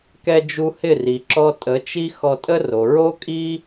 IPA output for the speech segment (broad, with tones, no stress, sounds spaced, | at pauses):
k ɛ˧ d͡ʒ u˧ h ɪ˦˨ r i˨ ǁ ɔ˧ tʼ ə˨˦ t͡ʃ i˦ x ɔ˧ tʼ ə˦ r o˨ ɹ o˦ kʼ i˦